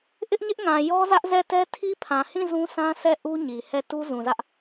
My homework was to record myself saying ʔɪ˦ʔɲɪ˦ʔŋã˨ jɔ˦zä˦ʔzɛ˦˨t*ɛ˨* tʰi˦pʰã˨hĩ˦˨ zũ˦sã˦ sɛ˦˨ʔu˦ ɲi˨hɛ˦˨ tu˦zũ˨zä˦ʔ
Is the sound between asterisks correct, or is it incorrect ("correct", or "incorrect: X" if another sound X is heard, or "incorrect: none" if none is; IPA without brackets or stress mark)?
incorrect: ɛ˦